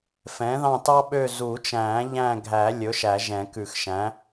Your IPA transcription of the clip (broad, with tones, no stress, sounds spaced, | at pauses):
f ɛ̃˩˥ ð ɑ̃˦˨ t ɑ˥ ɓ ø˦˨ z u˨˩˦ t͡ʃ æ̃ː˨˩˦ ʎ æ̃˦˨ ɡʱ æ˨˩˦ lʲ ɵ˩˥ ʃ æ˨˩˦ ʒ ɛ̃˨˩˦ k ʉ˨˩˦ x ʃ æ̃˩˥